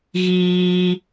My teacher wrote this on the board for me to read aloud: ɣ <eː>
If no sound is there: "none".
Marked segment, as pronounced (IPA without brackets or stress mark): iː